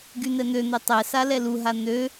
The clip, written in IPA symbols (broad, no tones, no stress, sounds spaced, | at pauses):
ɡ y n̪ ɛ n̪ ø n̪ ɛ tˤ ɛ s a l ɛ l u ɦ a n̪ ø